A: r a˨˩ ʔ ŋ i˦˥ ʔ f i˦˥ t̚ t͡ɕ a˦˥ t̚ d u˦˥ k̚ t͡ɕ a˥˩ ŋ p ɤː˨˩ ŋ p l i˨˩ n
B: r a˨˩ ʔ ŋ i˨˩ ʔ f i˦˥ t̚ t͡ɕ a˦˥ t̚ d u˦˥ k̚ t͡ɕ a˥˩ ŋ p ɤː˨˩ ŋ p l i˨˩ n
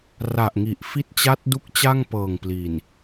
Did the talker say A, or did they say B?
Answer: B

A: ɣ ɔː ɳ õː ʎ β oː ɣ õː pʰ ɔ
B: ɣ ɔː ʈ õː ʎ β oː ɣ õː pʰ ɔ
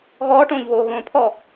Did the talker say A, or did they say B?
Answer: B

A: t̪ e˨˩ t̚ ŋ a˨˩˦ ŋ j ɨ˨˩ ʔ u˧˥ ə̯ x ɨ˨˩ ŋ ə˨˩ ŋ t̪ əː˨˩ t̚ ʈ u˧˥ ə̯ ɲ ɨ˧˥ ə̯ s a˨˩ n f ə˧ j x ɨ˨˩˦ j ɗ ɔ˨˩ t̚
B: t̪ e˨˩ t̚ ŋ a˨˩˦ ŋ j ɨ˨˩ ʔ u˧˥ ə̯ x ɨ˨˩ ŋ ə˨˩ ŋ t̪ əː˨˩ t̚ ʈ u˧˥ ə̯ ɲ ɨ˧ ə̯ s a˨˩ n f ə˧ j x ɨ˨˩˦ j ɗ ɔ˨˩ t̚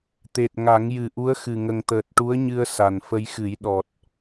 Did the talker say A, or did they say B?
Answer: B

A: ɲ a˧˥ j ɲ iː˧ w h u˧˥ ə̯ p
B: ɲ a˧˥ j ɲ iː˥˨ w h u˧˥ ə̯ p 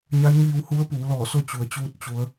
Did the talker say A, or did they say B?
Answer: A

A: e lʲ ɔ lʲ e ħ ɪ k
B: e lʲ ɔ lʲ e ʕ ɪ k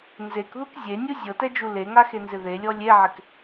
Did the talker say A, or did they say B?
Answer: B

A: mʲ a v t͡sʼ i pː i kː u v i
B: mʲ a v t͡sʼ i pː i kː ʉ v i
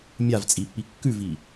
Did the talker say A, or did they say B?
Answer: B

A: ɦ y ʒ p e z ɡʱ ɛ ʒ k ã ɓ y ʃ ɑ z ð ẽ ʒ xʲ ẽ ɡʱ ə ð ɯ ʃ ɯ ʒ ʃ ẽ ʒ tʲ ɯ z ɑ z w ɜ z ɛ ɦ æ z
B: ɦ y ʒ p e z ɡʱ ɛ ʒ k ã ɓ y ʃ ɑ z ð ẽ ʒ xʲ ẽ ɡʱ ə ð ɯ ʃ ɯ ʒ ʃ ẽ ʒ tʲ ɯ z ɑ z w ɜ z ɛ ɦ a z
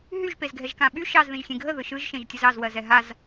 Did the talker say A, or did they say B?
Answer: B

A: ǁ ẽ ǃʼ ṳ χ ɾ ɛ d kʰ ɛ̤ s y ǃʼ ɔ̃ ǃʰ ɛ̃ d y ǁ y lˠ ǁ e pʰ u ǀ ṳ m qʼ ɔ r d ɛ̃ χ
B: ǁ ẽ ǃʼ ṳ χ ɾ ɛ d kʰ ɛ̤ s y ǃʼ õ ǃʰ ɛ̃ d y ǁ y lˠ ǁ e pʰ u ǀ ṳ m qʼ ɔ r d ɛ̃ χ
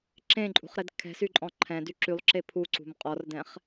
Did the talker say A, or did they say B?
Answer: A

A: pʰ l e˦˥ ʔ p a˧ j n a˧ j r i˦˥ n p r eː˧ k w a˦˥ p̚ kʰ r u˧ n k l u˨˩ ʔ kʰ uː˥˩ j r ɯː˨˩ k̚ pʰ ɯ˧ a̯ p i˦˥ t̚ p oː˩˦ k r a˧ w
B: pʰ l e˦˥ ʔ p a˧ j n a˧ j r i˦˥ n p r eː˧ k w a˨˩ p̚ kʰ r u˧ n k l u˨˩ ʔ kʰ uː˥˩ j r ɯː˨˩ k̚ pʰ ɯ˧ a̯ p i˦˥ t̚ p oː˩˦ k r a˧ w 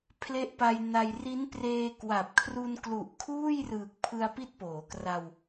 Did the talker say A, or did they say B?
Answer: B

